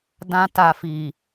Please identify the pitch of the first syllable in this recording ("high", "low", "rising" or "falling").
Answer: high